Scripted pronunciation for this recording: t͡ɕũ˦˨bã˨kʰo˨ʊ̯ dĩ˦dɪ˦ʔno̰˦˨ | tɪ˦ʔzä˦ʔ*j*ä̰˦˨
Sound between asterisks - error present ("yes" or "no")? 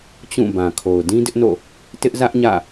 yes